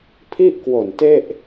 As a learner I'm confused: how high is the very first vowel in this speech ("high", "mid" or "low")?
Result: high